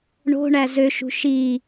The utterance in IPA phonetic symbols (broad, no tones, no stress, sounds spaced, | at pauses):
ɳ o̤ ɳ æ z ø ʃ ṳ ʃ i